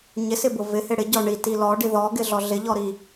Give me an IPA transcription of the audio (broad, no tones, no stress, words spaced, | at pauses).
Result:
ɲɪsɪbʊ vɪhɪ ɽɪɟɔ ɳiti lɔɖi ðɔɡɪɮɔ ɮɪʎɔɾi